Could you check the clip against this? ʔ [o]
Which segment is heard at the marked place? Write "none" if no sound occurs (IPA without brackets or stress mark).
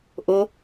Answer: o